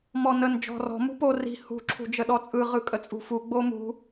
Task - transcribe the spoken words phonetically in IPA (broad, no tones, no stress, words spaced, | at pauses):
mɔnən d͡ʒɔ̤rɔ̤ mṳpo ri̤ hṳ ǁʰṳd͡ʒəɗɔt͡sʼɯ ʁɯkʼət͡sʼṳfu ɡ͡bomṳ